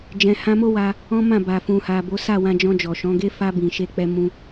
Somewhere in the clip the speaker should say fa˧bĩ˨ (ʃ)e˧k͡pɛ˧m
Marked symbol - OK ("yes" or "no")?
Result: yes